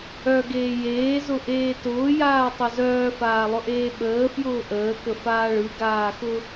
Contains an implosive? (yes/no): yes